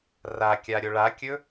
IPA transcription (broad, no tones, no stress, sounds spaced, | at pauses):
r a kʲ a ɾʲ o ɭ a kʲ ɵ